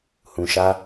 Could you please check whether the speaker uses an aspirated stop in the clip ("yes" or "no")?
no